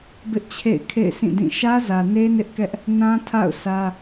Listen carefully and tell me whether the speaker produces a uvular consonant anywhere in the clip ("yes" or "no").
no